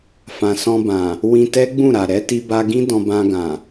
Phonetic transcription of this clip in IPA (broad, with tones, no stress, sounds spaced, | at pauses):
f ã˨ s ɔ̃˧ b ã˨ | w ĩ˧ t ɛ˦ ɡ͡b ũ˦˨ ɾ a˨ ɾ ɛ˨˦ t i˧ b a˧ ɡ ĩ˦ d ɔ̃˧ b ã˧ ɡ ã˨